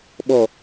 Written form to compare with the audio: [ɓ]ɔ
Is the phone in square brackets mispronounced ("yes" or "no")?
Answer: no